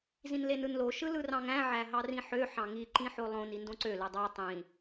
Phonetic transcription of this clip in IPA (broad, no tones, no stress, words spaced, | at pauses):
zĩnlenɯnlo ʃɯlɯrɑ̃ŋæ̃ ʕæɦɑrĩħø ħɑ̃ŋi ǃĩħolˠõn indõǀø lɯdˤæ tˤĩ